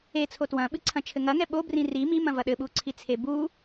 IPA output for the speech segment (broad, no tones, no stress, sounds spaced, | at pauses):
e t͡sʰ o t w ɐ̃ ɓ ɨ ǀʰ ɐ̃ t͡ʃʰ ɘ ŋ ɐ ŋ ɛ ɓ o b r ĩ r i m i m ɐ̃ v ɐ ɗ ɘ ɓ u ǀʰ i t͡sʰ e b u